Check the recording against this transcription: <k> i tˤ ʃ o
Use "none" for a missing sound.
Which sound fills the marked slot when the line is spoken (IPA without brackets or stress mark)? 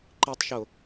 ǃ